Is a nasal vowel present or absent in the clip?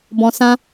present